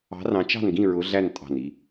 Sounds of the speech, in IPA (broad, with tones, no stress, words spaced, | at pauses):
ɑ̤˨˦rɑ̃˨˦t͡ʃɑ̤˦˨nɡĩ˦˨ ɹʊ˨˦ɮæ˦˨n tʼɑ̤˦˨ni˦